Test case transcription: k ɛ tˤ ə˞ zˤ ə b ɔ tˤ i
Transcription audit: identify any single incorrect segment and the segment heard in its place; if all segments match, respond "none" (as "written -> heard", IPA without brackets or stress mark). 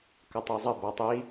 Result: ɛ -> ə